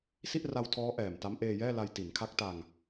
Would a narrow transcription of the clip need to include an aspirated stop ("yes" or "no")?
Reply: yes